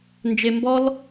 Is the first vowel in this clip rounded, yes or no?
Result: no